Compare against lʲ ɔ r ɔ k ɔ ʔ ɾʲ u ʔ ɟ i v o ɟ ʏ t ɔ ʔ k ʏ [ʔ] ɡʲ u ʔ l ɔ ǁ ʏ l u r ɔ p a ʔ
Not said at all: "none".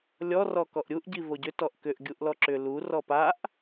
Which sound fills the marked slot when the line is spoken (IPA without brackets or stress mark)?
ʔ